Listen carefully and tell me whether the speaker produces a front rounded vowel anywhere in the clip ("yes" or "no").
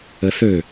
yes